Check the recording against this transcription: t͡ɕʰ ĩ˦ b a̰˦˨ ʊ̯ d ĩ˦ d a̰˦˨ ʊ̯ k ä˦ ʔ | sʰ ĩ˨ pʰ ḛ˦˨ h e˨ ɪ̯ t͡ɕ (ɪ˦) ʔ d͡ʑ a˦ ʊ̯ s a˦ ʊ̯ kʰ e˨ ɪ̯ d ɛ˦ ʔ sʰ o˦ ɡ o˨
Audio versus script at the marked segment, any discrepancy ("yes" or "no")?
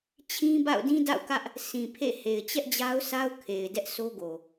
yes